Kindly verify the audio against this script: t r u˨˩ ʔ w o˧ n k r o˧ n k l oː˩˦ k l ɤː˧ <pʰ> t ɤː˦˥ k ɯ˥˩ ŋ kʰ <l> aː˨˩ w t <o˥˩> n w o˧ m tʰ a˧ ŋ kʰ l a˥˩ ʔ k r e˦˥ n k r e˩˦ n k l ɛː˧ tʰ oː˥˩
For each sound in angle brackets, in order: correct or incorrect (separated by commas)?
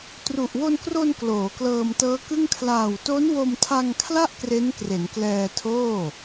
incorrect, correct, incorrect